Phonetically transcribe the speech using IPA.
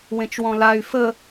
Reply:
wẽt͡ʃwɔ̃lay̯ fə

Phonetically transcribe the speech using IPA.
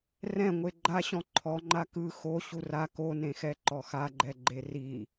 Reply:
rɛ̃ŋʷe ɡ͡ǃaɕɔ̃ ǃʰɔŋ͡ǃa kɯ xo ɕura konẽxɛ ǃɔxaɡ͡ǃɛ ɡ͡ǃeri

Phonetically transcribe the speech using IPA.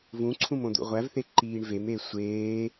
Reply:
vũǀʰũm õd̪ṵʁʷævθe ǃiːɳvemeː sʷeː

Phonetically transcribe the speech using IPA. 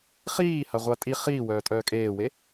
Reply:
χiːha ʁʷatʼi χiːwœːtʼœː kʼeːwe

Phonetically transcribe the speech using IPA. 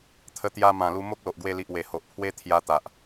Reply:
t̪ʰə˧t̪ja˧ mã˨˩lu˧ mo˦k̚lo˨ʔɡwe˧li˨ʔ we˨˩ho˨ʔpʰwe˦ t̪ʰja˧t̪a˨ʔ

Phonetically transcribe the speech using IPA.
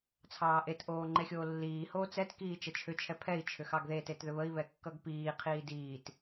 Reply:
t͡sʰɑːʔetʔoː ŋ͡ǃexʲoːlːiːhoː t͡sɛtkiː t͡ʃət͡ʃʰʏt͡ʃʰɛ pʰɛi̯ t͡ʃʰʏxɑɡðetet ðʏβəi̯βɛ kːʌɡpiːqʰiː diːt

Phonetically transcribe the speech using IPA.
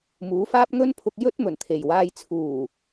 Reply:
muː˨˧faː˥p̚ŋɵ˥npʰʊ˧k̚ jɵ˥t̚ mɵ˨˩nt̪ʰe˨˩jwaː˧j t͡sʰuː˨˩

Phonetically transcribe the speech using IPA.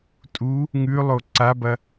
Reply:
tʼu | ŋʉlˠo ǀabɐ

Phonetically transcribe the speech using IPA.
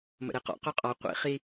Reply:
mə̰ɾeqɔ̰ qʉqʼɒ qʷḭ χi

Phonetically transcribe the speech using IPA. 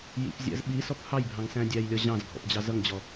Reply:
jḭpzʲæ̰z ɓisɔp hɑjbʱɑ̃ŋsæ̃ dʲæjlʲɒ ʑɑ̃zɡʱɔ̰pd͡ʑɑ zʌŋd͡ʑɔ

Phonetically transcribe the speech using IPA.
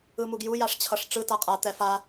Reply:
ɯmuɡju jaʂt͡ɕʰʌʂʈ͡ʂɯ taqʼa t̪ɛfa

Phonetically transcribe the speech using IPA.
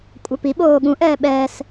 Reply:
kʷʼœpi ɓoːɠũʔ ɛːɓɛːs

